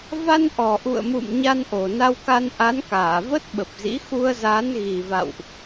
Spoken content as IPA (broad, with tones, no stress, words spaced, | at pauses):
va˧n ʔɔ˨˩ʔṵ˧˨ə̯mṵ˧˨m ɲa˧nʔo˨˩na˧wka˧n ʔa˨˦nkaː˧˩və˦˥t̚ ɓə˨˩p̚zḭ˧˥ xu˧ə̯za˨˦n ɣi˨˩va̰˧˨wʔ